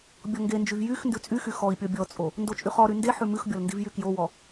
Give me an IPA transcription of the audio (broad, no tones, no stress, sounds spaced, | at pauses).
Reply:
bʲ ɔ ŋ ɡ e n d͡ʒ y v j y x n d ʉ t͡sʼ y x y x ɔ i̯ pʲ ɔ bʲ ɔ t͡sʼ o | n d o t͡ʃʼ y χ ɔ ɾ y n d e ħ ʉ m ʉ x bʲ ɔ l n d i v j y k j o w ɔ